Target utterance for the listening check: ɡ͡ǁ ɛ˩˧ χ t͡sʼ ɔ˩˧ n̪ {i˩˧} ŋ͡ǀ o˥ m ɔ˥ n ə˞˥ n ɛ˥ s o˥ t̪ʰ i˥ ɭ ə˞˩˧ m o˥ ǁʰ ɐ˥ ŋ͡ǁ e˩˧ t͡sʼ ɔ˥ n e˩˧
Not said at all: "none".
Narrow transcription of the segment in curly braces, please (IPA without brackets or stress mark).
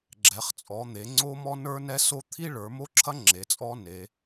e˩˧